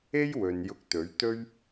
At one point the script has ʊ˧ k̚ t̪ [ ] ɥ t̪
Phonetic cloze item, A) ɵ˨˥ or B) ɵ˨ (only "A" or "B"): A